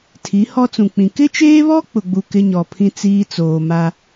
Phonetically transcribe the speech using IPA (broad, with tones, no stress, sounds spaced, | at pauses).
tʰ i˨˦ h ɔ˦ t͡s ũ˨ k͡p ĩ˨ k ɪ˦ t͡ʃ eː˦ β ɔ˦ k͡p ʊ˨ ɡ͡b u˨ k ɪ˦ ɲ ɔ˨ pʰ ĩ˦ t͡s iː˦ t͡s oː˨ m a˦